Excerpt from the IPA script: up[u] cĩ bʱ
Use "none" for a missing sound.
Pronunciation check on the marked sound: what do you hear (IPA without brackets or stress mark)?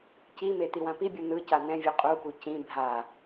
u